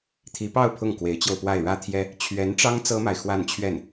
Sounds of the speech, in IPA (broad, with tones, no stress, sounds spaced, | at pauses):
t̪ʰ i˧˥ p ɑ˥˧ ʊ̯ pʰ ʊ˥˩ ŋ k w e˧˥ ɪ̯ t͡ɕ j o˧ ʊ̯ p w a˥˩ ɪ̯ ɻ ä˥ t̪ʰ j ɛ˥ | t͡ɕʰ ɥ ɛ˧˥ n ʈ͡ʂ ɑ˥ ŋ t͡s ɤ˥ m a˨ ɪ̯ x w a˥˧ n t͡ɕʰ ɥ ɛ˥˩ n